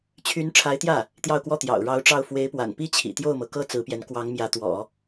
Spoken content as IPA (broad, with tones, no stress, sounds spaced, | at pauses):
t͡ɕʰ y˧˥ n ʈ͡ʂʰ a˧˥ ɪ̯ t̪ j ä˥˩ | t̪ j ɑ˥˧ ʊ̯ k w ɔ˥˩ t̪ j ɑ̰˨˩ ʊ̯ ɻ ɑ˧˥ ʊ̯ ʈ͡ʂ ɑ˥˩ ʊ̯ f w e˧˥ ɪ̯ p w a̰˨˩ n p i˥ t͡ɕʰ ḭ˨˩ t̪ j o˥˩ ʊ̯ m ɤ˩ k ɤ˥ t͡s ɹ̩˧˥ p j ɛ˧˥ n k w ɑ˧˥ ŋ m j ä˧˥ t̪ w ɔ̰˨˩˦